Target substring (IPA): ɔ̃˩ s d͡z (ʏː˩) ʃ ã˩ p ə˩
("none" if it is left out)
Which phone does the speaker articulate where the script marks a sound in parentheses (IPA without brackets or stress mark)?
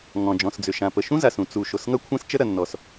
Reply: ʏ˩